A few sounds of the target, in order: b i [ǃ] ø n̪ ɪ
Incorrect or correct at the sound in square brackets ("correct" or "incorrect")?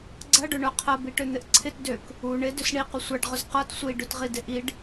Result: incorrect